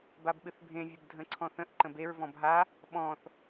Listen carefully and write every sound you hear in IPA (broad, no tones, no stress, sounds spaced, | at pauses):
b a b ɓ ɨ θ bʱ ẽ vʲ ə b dʱ ə̃ ǀʰ ɔ̃ θ ə̃ ʔ ǃ ə̃ b e ɹ v ɔ̃ b ɦ a | ɓ ɔ̃ θ